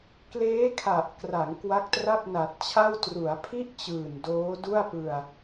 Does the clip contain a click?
no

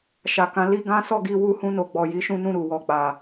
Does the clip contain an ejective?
no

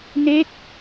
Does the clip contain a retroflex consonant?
no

